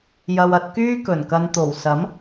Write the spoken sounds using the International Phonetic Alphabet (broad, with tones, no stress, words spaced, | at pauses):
jɐ˧wɐ˨˥t̚ kyː˥kɵ˨˩nkɐ˧n t̪o˨˩wsɐ˨˥m